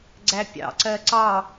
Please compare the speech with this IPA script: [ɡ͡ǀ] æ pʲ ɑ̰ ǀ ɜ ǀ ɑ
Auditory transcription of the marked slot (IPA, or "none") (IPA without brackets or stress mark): ɡ͡ǀ